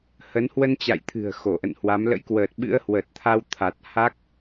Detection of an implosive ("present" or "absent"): present